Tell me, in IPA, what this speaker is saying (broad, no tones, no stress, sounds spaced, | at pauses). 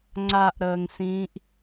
ŋ͡ǀ a ʔ ɾ əː ŋ s ĩː ʔ